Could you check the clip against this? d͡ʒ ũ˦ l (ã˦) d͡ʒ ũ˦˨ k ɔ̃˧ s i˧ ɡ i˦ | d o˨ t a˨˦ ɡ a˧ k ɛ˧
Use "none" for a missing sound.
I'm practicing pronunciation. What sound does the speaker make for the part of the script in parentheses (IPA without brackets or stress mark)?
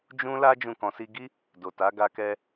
a˦